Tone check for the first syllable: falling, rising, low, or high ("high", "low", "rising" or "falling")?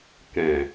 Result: low